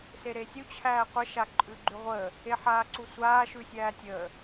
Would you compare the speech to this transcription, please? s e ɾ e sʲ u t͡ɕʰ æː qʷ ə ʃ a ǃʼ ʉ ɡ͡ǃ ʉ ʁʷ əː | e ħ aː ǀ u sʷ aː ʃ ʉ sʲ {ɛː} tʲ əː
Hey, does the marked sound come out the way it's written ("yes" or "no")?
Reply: no